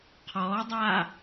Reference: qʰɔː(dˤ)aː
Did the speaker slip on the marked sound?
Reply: no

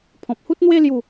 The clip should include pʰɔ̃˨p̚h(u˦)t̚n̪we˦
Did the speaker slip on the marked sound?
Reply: no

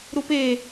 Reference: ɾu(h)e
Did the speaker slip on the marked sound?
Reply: yes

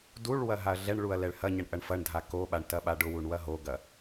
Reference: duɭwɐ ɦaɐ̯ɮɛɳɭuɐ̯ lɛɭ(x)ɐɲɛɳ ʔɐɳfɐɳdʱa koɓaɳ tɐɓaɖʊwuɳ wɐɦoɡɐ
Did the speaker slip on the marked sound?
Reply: yes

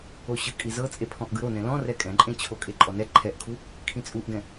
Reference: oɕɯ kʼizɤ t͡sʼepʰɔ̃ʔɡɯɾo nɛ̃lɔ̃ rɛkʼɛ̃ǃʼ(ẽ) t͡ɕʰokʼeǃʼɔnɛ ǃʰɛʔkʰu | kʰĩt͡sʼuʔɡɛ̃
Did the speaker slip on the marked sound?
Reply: no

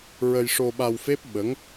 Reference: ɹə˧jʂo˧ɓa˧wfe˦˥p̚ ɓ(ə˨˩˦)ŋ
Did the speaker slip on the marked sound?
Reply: yes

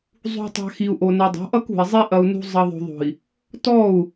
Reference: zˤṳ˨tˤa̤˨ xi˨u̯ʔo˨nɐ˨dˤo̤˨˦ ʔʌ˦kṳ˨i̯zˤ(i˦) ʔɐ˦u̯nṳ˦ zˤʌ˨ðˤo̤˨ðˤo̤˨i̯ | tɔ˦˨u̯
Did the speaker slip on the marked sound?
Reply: no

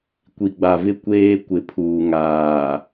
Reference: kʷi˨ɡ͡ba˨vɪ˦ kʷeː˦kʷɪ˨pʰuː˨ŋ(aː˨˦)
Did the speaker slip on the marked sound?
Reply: yes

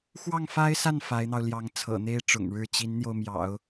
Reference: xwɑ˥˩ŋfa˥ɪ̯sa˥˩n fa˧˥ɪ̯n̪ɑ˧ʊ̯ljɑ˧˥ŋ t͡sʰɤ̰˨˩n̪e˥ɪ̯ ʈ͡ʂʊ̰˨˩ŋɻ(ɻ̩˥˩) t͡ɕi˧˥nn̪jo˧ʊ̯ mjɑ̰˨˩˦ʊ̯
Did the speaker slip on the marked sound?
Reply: no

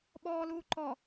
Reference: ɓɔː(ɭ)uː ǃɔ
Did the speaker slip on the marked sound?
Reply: yes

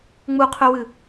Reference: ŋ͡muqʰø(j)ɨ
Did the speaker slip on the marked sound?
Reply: yes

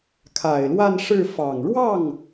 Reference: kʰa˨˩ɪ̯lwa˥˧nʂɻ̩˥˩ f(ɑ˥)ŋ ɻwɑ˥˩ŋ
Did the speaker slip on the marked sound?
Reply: yes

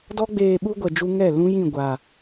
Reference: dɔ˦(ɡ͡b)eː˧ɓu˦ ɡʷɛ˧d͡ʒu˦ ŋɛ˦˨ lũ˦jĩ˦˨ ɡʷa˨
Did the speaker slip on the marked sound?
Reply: no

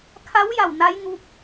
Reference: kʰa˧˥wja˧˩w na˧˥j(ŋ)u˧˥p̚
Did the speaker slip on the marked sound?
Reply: no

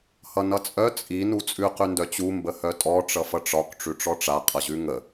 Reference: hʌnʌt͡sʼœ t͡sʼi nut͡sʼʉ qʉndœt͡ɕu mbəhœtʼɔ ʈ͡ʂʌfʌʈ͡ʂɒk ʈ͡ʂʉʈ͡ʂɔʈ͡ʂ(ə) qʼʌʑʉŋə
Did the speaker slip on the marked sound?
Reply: yes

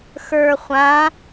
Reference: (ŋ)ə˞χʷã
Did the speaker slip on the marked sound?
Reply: yes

